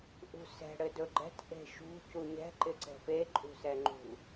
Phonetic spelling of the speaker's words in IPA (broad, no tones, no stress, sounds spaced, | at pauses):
ʔ ṳ s ɛ̤ ɽ ɘ d ɵ ɡ͡ǃ ɛ̤ t ʔ e̤ ʃ ṳ c u ɲ ɛ̤ ǃ ɪ ǀ ɛ̤ p e ǃʼ ṳ s ɛ ŋ͡ǃ ṳ